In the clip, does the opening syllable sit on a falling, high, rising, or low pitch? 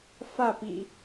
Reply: falling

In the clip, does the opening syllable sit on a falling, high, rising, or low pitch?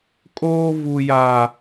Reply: high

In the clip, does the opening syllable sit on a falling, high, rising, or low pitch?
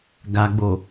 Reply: low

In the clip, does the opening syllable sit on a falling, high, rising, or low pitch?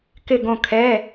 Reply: falling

